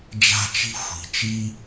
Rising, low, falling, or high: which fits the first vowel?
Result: high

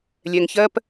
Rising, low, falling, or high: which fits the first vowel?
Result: low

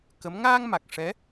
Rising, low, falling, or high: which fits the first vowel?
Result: rising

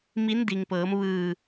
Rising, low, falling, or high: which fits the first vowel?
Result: rising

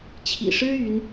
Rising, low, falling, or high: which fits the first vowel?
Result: low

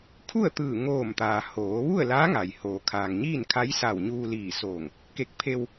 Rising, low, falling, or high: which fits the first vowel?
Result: falling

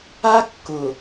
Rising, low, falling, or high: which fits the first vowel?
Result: high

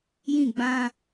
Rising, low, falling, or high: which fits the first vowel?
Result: falling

